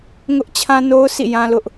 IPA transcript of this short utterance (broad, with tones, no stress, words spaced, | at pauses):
ŋʊ˦ʔ t͡ɕʰã˦no˦ʊ̯sʰḭ˦˨ jã˦lʊ˦ʔ